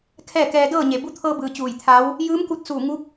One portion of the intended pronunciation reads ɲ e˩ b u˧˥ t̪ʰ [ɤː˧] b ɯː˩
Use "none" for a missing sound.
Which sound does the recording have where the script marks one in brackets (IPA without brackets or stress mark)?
ɤː˧